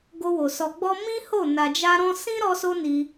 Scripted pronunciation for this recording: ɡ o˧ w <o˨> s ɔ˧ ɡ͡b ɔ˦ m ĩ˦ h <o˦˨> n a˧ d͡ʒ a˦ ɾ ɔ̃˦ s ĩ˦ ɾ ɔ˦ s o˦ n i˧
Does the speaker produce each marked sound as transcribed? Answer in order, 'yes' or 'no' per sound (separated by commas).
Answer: yes, yes